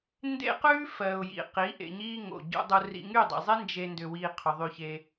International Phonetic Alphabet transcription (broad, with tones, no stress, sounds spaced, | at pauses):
n d ḛ˦ q ʉː˦ f ɜ˨ ʊ̯ j ḭ˨ q i˨˦ ʔ ḛ˧ ɲ iː˦ ŋ o̰˨ ɟ ṵ˧ dˤ u˧ r ḭ˧ ŋ y˦˨ dˤ ḭ˨ zˤ e˦ n d͡ʒ e˦ n d ʏ˧ w iː˧ qʰ ʏ˨ ðˤ y˧ ç e˧